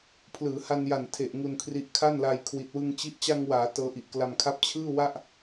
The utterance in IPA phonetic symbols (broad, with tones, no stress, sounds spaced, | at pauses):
pʰ l ɯː˩˦ h a˧ n j a˨˩ n tʰ e˨˩ ʔ ŋ u˧ n kʰ r i˦˥ ʔ kʰ a˥˩ n l a˧ j kʰ w i˨˩ t̚ w ɯ˧ ŋ t͡ɕ i˦˥ ʔ t͡ɕ a˧ ŋ w aː˩˦ t ɤː˦˥ ʔ i˨˩ ʔ k l a˧ m kʰ a˥˩ p̚ t͡ɕʰ ɯː˥˩ w a˥˩ ʔ